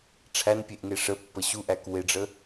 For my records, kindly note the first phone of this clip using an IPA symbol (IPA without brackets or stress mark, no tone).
ʈ͡ʂʰ